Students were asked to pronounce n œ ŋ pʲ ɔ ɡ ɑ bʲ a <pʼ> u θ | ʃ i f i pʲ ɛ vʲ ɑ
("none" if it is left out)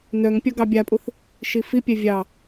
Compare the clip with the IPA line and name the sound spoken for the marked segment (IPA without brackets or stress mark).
pʼ